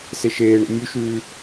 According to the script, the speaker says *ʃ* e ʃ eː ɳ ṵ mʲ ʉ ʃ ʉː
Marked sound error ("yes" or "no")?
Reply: yes